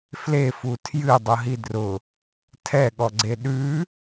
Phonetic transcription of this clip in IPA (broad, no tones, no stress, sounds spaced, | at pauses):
f l e f u tʰ j ɨ dˤ ʊ ɦ i d r ʊ | tʰ ɛ ɠ ɔ ɡ͡ǀ e ɗ ʉ